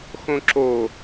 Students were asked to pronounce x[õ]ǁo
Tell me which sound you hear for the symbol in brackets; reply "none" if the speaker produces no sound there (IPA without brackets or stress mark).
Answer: õ